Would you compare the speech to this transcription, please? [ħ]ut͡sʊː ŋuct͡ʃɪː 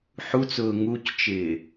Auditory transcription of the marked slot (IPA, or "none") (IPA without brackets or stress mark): ħ